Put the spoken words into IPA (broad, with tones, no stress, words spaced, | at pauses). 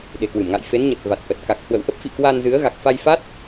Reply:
ɗe̤˨˩kwɨ˧˩mŋa̰˧˨j fe˨˦nɲə˨˩t̚va˨˩t̚ʔə˨˩t̚ ka˨˩k̚hwə̰˧˨wʔə˦˥p̚fḭ˧˨ kwa˧nzɨ˨˦ə̯ ɣa˨˩k̚fa˧jfa˦˥t̚